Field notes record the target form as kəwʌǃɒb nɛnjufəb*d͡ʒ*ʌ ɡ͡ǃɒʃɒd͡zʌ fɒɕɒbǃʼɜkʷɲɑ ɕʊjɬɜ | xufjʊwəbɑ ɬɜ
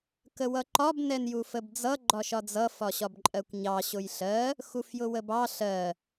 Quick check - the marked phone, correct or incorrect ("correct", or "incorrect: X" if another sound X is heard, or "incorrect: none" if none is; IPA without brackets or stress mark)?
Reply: incorrect: d͡z